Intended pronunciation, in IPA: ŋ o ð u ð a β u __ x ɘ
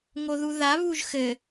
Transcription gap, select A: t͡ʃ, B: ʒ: B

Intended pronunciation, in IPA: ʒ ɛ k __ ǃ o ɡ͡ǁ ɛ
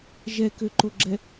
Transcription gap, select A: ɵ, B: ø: B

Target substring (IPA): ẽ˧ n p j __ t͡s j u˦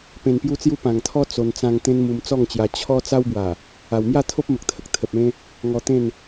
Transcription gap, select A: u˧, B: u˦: B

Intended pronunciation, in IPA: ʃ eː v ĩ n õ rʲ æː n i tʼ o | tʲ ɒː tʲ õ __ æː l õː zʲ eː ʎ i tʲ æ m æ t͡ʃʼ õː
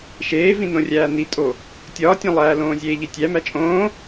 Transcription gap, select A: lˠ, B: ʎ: A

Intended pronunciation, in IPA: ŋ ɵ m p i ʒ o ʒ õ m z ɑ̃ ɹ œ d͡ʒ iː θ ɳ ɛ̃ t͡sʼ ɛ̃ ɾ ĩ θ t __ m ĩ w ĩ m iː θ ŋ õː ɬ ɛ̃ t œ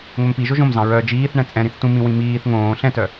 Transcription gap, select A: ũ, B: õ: A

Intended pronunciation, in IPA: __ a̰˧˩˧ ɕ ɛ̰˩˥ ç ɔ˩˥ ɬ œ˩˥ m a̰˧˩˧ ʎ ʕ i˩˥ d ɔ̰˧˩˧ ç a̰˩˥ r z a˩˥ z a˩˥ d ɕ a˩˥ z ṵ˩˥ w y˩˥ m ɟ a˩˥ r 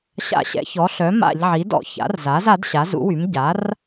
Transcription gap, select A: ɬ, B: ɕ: B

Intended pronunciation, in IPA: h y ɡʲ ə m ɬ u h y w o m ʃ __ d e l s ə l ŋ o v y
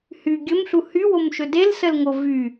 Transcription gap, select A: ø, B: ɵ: B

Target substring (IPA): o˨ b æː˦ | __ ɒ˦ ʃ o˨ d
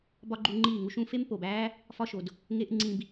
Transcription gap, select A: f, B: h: A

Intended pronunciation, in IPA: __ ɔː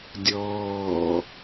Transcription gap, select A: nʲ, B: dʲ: B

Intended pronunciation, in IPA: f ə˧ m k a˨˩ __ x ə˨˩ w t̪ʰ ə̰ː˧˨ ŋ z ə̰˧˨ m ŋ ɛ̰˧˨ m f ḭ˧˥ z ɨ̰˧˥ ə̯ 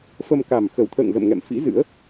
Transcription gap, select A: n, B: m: B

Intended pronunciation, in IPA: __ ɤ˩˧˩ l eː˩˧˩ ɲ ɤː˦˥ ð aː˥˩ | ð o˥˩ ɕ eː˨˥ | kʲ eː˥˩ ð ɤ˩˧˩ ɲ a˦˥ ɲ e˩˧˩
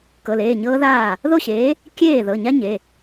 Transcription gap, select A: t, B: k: B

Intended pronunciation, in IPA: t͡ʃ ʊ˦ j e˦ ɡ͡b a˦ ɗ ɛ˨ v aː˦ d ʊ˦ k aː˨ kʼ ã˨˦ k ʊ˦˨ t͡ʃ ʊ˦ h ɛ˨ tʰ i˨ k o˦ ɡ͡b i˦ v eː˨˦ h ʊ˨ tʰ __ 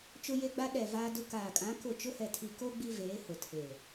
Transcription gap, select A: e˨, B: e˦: A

